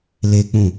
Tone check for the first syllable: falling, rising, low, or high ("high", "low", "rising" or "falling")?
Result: high